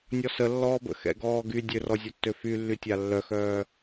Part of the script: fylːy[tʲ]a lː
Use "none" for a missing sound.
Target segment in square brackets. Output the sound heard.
tʲ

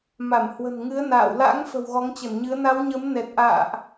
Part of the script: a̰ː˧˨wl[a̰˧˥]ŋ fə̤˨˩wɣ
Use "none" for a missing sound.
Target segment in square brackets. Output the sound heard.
a̰˧˥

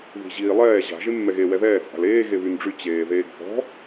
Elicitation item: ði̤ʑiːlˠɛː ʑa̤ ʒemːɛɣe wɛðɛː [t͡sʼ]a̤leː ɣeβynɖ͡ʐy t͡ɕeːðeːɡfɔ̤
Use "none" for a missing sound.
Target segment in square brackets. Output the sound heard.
t͡sʼ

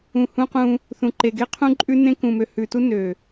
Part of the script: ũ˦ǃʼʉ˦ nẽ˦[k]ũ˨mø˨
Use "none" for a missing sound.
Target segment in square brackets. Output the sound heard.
k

